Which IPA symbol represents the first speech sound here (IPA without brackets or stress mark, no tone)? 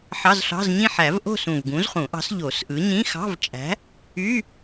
ħ